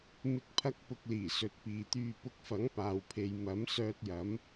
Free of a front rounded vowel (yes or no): no